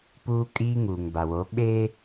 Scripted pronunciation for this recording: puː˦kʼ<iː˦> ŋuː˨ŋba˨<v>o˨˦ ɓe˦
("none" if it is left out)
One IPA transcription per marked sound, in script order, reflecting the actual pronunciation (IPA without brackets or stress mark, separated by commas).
iː˦, w